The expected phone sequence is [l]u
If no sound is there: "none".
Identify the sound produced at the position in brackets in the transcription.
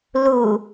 l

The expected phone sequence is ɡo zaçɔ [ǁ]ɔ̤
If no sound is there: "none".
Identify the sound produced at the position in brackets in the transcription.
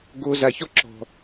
ǁ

